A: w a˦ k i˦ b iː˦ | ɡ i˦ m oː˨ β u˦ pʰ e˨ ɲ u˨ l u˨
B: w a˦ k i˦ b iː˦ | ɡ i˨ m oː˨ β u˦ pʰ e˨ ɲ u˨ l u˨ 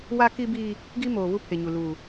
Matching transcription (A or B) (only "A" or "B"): A